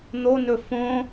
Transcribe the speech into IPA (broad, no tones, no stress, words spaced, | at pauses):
n̪onɵ fõ